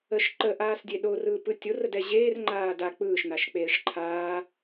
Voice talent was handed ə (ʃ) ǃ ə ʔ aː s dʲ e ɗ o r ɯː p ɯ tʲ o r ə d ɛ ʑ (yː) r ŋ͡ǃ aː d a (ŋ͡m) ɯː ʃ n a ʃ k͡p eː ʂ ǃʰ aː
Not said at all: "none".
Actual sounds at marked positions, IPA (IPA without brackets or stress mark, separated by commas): ʃ, eː, k͡p